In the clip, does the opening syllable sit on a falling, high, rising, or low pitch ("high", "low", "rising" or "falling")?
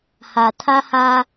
low